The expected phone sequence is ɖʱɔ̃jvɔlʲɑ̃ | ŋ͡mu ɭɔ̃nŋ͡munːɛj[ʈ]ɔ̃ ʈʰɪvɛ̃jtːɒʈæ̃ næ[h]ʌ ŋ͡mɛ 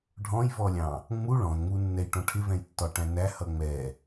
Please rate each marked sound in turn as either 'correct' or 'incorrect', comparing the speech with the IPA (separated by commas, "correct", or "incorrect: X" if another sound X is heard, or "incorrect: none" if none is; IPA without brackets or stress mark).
correct, correct